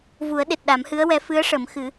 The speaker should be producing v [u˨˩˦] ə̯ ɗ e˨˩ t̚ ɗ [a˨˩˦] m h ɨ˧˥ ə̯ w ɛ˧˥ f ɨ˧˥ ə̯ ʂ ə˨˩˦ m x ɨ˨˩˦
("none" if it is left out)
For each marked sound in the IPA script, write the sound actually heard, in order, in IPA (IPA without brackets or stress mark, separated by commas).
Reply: u˨˩˦, a˨˩˦